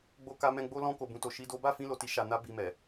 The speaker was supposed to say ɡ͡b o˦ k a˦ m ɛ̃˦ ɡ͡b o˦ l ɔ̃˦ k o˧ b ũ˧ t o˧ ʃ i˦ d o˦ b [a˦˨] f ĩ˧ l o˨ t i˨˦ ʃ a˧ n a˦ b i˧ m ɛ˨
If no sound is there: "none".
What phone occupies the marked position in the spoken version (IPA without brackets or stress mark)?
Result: a˦˨